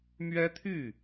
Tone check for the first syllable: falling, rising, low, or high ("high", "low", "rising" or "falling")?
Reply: high